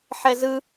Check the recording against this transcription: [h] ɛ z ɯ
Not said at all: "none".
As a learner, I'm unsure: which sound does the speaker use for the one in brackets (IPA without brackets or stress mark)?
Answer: ħ